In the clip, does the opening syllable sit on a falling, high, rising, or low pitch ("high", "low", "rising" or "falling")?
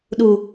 low